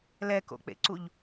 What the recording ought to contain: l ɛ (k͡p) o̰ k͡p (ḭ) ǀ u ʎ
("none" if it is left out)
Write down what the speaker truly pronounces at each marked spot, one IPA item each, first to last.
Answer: k, ḛ

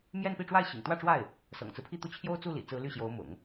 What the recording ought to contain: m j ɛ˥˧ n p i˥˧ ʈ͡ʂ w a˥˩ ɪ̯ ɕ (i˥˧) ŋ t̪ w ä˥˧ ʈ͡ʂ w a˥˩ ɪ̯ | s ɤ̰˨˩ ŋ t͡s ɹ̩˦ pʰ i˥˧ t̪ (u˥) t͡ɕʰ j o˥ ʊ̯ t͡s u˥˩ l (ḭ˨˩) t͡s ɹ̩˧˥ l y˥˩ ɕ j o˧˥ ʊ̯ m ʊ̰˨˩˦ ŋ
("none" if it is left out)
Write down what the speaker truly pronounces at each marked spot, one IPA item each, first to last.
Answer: ḭ˨˩, u˥˩, ḭ˨˩

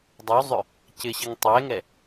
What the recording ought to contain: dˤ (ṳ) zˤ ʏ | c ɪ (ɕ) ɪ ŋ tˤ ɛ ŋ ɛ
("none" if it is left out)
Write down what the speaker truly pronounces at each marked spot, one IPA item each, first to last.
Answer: u, ɕ

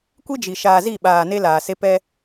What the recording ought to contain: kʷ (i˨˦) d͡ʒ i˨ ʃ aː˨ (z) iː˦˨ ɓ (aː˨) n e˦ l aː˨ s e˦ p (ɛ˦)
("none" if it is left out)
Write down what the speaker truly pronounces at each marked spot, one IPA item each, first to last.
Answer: i˦, z, aː˨, ɛ˦

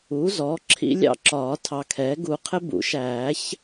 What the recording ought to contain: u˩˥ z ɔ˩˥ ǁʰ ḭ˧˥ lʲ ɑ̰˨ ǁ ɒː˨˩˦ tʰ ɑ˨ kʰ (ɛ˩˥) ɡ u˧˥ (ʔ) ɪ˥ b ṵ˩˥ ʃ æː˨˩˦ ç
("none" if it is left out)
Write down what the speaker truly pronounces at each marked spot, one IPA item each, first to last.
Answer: ɛ˩˥, qʰ

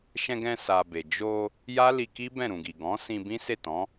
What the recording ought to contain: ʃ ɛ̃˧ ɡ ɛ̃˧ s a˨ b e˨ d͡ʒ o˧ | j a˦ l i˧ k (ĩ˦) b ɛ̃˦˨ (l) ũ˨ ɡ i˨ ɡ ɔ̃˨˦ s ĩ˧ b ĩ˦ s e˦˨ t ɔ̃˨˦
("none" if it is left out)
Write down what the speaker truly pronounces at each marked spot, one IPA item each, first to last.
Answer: i˦, ɾ

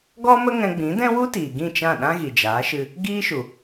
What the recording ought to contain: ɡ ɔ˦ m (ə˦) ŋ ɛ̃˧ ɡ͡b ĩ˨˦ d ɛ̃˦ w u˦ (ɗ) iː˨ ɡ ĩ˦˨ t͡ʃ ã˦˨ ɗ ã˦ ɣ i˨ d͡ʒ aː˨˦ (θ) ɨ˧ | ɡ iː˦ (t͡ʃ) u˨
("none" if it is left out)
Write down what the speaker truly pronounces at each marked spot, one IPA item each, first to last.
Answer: ə˦, t, ʃ, ʃ

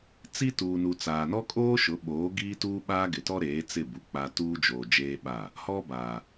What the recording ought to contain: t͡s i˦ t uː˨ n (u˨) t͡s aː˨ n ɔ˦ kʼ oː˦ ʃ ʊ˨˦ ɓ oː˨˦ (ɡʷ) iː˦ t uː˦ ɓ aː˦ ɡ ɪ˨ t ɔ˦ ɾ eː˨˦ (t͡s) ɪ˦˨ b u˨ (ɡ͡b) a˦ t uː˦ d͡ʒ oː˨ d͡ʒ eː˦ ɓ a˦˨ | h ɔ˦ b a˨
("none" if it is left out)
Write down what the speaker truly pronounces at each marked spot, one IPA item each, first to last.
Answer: u˨, ɡ, t͡s, k͡p

